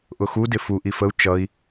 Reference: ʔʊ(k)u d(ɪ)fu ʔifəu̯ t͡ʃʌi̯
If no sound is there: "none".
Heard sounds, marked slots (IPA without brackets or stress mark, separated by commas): x, ɪ